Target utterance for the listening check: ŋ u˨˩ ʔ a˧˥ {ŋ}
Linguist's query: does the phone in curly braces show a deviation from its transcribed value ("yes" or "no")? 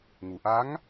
no